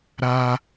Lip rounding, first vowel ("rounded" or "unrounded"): unrounded